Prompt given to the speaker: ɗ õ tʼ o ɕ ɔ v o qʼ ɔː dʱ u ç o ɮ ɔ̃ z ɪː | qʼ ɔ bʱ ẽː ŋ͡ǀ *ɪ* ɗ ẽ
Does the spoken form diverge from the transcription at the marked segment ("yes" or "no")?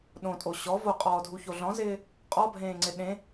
no